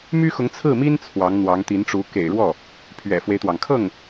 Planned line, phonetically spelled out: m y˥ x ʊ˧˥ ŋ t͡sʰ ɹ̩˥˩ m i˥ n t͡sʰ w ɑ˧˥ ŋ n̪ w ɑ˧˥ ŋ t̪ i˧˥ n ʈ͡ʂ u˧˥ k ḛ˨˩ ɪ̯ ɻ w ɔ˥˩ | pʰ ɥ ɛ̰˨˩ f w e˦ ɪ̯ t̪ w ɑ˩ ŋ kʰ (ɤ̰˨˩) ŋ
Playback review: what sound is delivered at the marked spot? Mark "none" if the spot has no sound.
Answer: ɤ˥˩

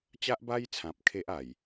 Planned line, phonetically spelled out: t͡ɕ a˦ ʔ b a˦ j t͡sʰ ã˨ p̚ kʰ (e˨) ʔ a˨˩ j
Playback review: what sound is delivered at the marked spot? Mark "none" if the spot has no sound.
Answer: e˦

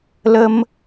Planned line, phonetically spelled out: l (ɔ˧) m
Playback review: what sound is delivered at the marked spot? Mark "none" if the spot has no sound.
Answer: ə˧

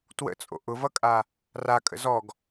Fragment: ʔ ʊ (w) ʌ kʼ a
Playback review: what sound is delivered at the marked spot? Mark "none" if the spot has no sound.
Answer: v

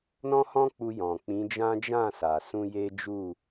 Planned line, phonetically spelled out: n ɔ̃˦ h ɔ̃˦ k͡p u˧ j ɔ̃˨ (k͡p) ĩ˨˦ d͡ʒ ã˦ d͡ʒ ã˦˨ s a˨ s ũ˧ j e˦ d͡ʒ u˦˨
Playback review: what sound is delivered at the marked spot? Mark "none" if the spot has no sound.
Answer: k͡p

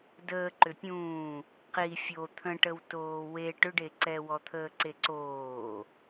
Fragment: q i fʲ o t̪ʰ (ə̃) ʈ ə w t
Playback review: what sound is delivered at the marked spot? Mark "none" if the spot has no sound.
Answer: ə̃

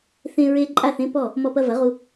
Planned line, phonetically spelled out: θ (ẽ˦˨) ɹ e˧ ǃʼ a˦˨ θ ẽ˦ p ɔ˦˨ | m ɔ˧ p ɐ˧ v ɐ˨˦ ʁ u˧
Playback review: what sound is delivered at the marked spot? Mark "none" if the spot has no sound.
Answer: ẽ˧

